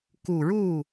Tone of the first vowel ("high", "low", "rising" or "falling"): low